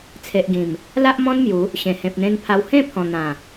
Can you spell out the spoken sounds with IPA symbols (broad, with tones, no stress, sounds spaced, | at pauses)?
t͡sʰ e˨ ʔ ɡ ĩ˨˩ m | l a˦ ʔ m ɔ̃˦ n m j u˨˦ | ɕ ẽ˨˩ h ẽ˨ p̚ n̪ ẽ˧ n pʰ a˧ w h ẽ˥˧ pʰ ɔ̃˨˩ n̪ ã˨˩